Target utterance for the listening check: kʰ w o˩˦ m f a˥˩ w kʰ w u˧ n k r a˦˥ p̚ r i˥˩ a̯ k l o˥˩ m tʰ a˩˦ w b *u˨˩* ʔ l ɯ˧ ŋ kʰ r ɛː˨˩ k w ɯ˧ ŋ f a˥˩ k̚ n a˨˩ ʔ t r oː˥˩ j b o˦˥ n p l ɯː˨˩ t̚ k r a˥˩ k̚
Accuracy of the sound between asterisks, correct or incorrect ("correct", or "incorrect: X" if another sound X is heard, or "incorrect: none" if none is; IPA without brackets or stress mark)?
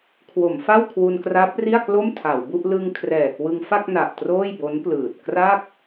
incorrect: u˥˩